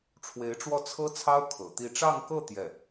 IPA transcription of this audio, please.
ʈ͡ʂʰ w e˧˥ ɪ̯ ʈ͡ʂ w ɔ˥˩ t͡sʰ ɤ˥ t͡sʰ ɑ˥ ʊ̯ kʰ ɤ̰˨˩ t̪ i˥˧ ʈ͡ʂ ɑ˥˧ ŋ k ɤ˥˧ t̪ j ɛ˥˩

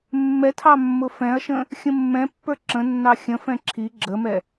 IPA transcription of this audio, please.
mː ɛ tʰ ɑ mː ʊ f ɛ̃ ɐ̯ ʃ ə̃ | xʲ ə̃ mː ɛ̃ pː ə˞ ǁ ə̃ nː ɑ xʲ ə̃ f ɛ̃ ǁʰ i ɡ͡ǁ ə m ɛ

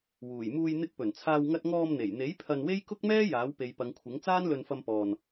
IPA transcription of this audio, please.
w uː˨˩ j m uː˧ j n̪ ɪ˧ k̚ p ɵ˨˩ n t͡sʰ aː˧ w ŋ ɐ˧ t̚ ŋ ɔː˧ m n̪ e˨˩ j n̪ e˨˥ j pʰ ɐ˧ n w e˥ j k ʊ˥ k̚ m ɛː˥ j aː˨˥ w p e˨˧ j p ɐ˨˧ ŋ kʷʰ ɪ˨˥ ŋ t͡s aː˥ n l ɵ˧ n f ɐ˧ m p ɔː˨ n

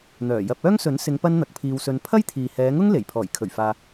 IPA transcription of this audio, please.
n̪ œː˨˩ j ɐ˧ p̚ œː˥ ŋ s ɵ˨˥ n s ɪ˨˧ ŋ p ɐ˥ n n̪ ɐ˨˥ k̚ pʰ iː˧ w s ɵ˧ n pʰ ɐ˥ j t̪ʰ iː˨ h ɛː˨˧ ŋ ʊ˥ ŋ l e˨˩ j pʰ ɔː˨˩ j kʰ ɵ˨˩ ɥ f aː˨

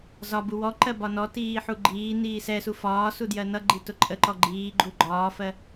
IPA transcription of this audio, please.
z ɒ b u w ɔ ǃ ɜ b ɒ n ɔ t iː ħ u ɡ͡ǃ iː n iː s ɛ s u f ɒː s u d j ɜ n ʌ ɡ͡ǃ i t ʊ ǃʼ ə ǃ ɔ ɡ͡ǃ iː ɡ͡ǃ u ɡ͡ǃ ɒː f ɜ

